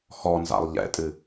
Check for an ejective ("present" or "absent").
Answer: present